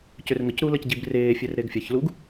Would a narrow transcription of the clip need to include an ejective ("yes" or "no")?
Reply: no